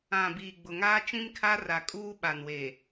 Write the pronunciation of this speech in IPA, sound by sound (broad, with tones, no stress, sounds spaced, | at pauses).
ã˨ b iː˨ ɡ͡b ʊ˨ ŋ aː˦ t͡ʃ ĩ˦ m kʰ a˦ r a˨ kʼ uː˦ ɓ a˨ n w eː˨